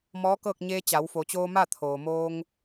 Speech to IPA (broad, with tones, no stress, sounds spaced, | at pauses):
m ɔː˧˥ k ɤː˥˨ k̚ ɲ eː˧ t͡ɕ a˩˧ w f o˩˧ t͡ɕ oː˧ m a˥˨ t̪ʰ oː˩ m oː˧ ŋ